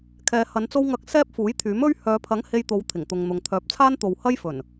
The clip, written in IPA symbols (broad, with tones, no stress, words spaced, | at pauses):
kʰɛː˨˧hɐ˨˧n t͡so˧wŋɐ˨˥k̚ sɛː˥p̚fuː˨˥jt̪ʰyː˨˥m ɵ˥ɥ hœː˨˧pʰɐ˨˥ŋ he˧jt̪o˨˧w t̪ʰɪ˨˩ŋt̪ʊ˨ŋn̪ʊ˨ŋ t̪ʰœː˨˥p̚t͡sʰaː˥nt̪o˨w hɐ˥jfɵ˨˩n